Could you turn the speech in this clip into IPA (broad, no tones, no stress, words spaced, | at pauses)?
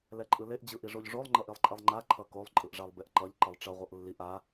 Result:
lɛǃʼɯleʔ d͡ʑɯʔiʐoʎʐolˠ ŋ͡ǃʌʔilˠǃʼɛlˠŋ͡ǃa ǃʰʌkolˠ ǃʼɯʔʐalˠbeʔǃʌʎ ǃʌlˠʈ͡ʂʌ ʁʷʌʔlːiʔ a